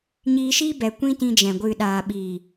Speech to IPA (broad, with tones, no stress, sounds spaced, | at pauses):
ɲ iː˧ ʃ iː˦ b ɛ˨ kʷ ĩ˦ t ĩ˧ d͡ʒ ɛ̃˨ ɡʷ ɨ˨ ɗ aː˨ ɓ iː˨